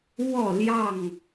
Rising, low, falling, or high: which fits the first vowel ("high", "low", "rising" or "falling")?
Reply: falling